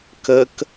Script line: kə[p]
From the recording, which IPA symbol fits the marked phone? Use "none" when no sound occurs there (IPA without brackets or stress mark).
k